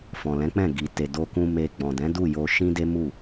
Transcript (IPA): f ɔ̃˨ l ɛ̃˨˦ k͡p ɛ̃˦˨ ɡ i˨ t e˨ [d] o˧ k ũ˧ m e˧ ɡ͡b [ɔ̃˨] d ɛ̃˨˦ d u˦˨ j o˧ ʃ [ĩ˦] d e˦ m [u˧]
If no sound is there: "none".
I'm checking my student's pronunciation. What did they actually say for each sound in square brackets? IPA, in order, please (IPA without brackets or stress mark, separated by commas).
d, ɔ̃˨, ĩ˦, u˦˨